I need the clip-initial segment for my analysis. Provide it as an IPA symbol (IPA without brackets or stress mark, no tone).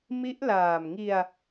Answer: m